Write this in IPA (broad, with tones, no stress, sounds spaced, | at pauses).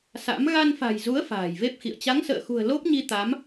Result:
s a̰˧˥ m ɣ a˧ n f a̤˨˩ j z u˨˦ ə̯ f a̤ː˨˩ j v e˦˥ p̚ x ḭ˧˨ ə̯ t͡ɕ a˨˦ ŋ s ə̰ː˧˨ x ṳ˨˩ ə̯ l o˦˥ p̚ ɲ i˧ t̪ a˨˦ m